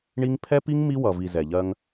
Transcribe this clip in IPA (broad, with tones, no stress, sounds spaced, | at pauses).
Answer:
ɳ i˦ ŋ pʰ ɛ˦ p i˦ ŋ m i˦ w ʌ˨ v i˨ z ɛ˨ ʎ ɜ˦ ŋ